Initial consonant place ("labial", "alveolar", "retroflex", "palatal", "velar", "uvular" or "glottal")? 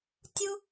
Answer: alveolar